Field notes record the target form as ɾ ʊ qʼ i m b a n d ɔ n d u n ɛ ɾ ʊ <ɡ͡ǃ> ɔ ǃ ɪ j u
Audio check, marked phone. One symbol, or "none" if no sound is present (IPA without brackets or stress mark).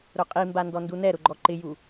ɡ͡ǃ